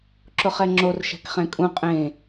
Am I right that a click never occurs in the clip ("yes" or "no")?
no